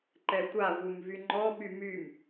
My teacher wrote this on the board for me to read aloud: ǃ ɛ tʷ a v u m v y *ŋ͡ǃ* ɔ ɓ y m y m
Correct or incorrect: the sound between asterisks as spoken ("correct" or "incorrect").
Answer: correct